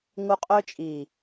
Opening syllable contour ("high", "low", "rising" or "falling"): high